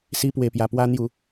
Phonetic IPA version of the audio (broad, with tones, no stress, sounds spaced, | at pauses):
s i˧ p w e˨˩ p j a˨˩ p w a˧ n̪ j u˨˩